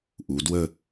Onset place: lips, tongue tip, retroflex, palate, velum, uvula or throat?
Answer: throat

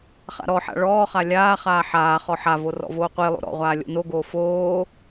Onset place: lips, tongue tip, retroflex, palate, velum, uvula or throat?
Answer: uvula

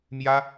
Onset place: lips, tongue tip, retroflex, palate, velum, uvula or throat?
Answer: lips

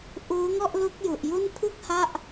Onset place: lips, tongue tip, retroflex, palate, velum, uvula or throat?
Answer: throat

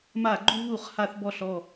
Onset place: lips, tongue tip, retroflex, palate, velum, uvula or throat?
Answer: lips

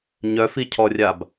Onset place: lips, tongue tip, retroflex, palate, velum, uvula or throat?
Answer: palate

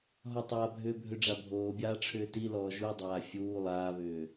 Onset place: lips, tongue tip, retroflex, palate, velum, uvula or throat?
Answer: throat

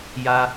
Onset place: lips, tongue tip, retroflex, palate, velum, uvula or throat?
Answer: palate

